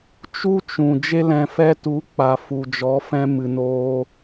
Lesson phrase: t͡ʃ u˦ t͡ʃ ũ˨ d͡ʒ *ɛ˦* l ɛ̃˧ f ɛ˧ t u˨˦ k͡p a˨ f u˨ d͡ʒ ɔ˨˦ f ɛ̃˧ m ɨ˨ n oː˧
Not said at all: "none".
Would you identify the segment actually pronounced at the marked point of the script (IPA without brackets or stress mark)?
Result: e˦